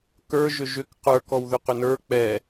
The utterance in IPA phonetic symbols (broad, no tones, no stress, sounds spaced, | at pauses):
k ə˞ ʒ ʏ ʒ ʏ k q ə˞ k ɔ w ð ʏ q ʏ n ə˞ k͡p ɛ